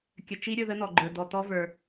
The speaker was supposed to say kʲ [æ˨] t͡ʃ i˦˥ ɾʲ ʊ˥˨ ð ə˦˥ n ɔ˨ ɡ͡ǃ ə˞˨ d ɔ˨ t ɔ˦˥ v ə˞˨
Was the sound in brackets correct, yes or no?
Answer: no